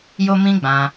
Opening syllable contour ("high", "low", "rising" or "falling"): high